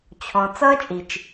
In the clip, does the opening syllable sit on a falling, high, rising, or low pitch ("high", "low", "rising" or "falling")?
low